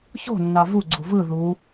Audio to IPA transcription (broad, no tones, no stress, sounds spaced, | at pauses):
ç o̤ nː ɑ v u ɡ͡ǀ u v ɯ ð u